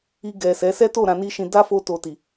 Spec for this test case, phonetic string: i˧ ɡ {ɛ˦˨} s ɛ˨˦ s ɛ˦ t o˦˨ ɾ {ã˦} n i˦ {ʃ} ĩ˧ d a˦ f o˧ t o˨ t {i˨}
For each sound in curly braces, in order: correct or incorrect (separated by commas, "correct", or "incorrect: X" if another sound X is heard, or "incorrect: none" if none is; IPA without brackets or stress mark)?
incorrect: ɛ˨, incorrect: ã˧, correct, correct